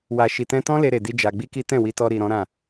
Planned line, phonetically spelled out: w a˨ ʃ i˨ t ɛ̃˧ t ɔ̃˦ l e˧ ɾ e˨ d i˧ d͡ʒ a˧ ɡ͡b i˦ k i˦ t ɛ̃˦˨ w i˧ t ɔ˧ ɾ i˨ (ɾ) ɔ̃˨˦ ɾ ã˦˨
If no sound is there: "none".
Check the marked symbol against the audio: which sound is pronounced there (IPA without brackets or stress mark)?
ɾ